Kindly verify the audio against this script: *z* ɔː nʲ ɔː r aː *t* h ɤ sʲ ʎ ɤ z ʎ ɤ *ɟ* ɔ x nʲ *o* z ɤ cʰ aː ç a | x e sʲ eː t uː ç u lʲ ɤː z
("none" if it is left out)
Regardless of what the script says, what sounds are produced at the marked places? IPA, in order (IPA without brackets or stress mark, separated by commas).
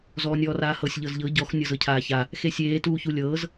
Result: z, none, ɟ, ɤ